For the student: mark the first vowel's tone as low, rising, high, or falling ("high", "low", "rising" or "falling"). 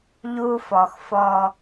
high